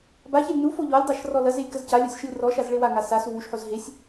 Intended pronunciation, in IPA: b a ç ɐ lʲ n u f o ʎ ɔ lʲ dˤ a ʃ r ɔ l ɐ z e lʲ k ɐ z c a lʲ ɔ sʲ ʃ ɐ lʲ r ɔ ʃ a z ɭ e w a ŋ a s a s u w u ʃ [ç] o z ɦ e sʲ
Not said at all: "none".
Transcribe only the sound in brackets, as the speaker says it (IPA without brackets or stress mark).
ħ